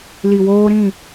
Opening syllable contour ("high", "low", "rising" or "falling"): low